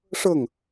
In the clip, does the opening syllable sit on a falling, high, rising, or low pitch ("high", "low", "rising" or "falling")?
falling